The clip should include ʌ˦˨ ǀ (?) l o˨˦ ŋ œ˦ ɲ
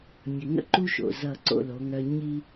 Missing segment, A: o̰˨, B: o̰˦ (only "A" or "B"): B